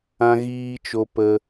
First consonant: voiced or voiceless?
voiced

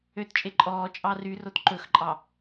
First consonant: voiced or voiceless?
voiceless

